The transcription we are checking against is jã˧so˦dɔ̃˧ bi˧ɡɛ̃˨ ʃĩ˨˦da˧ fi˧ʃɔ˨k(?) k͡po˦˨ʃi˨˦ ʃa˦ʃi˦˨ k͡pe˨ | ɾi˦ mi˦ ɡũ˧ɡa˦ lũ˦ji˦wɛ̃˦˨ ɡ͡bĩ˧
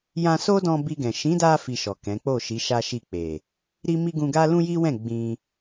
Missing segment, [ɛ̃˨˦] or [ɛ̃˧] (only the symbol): ɛ̃˨˦